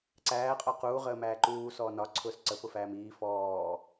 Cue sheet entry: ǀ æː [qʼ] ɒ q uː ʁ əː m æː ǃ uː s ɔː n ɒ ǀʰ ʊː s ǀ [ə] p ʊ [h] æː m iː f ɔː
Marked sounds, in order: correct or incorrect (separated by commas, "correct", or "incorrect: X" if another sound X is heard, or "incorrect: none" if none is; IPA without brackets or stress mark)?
correct, correct, incorrect: f